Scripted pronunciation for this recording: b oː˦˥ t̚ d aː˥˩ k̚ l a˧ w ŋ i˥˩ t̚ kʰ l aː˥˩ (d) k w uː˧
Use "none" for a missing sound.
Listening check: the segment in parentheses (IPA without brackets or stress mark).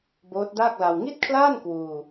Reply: n